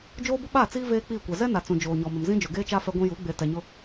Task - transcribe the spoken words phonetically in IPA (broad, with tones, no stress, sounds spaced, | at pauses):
d͡ʒ oː˦ b ʊ˦ ɓ a˦˨ t͡s iː˦ v eː˦ k͡p iː˦˨ kʷ ɛ˨ z ɛ˦ n a˨ t͡s ũ˨ d͡ʒ oː˨ ɲ ɔ˨ m ɪ˨ m z ĩ˦ d͡ʒ o˨ ɡ eː˦ t͡ʃ a˦ f ɛ˦ ɡʷ ĩ˦ j u˨˦ ɡ͡b e˨ t ɛ˨ ɲ ʊ˦